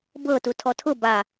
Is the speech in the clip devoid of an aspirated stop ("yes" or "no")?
no